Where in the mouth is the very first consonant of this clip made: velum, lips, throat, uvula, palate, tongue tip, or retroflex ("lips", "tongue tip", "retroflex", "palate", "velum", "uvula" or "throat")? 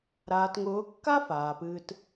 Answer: tongue tip